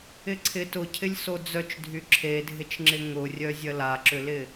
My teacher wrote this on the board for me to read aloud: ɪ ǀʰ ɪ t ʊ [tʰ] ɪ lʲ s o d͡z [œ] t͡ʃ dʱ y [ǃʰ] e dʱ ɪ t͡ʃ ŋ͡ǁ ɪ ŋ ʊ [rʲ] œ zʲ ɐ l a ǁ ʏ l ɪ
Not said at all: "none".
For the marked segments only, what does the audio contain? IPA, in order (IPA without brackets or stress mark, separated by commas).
cʰ, œ, ǁʰ, rʲ